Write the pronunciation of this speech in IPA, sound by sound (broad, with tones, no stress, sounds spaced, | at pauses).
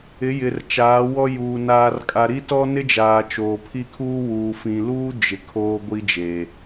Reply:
ɪ˨˦ j ɪ˨ r t͡ʃ aː˨˦ w ɔ˦ j uː˨ n aː˨ r kʼ a˨ ɾ i˦ t ɔ˦ n ɪ˦ d͡ʒ aː˨ t͡ʃ oː˨ pʰ i˦ kʰ uː˦ w uː˨ f ĩ˨ l uː˦ d͡ʒ ɪ˨ kʰ oː˦ ɡʷ i˦ d͡ʒ e˨